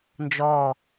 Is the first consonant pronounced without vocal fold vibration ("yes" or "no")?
no